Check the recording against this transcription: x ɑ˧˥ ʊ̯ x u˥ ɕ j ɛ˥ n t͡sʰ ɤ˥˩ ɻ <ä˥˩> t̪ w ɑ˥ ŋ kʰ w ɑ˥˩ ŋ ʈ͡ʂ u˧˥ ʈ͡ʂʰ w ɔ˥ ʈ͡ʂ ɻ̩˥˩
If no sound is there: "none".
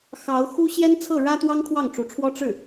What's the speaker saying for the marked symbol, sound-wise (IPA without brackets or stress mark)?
ä˥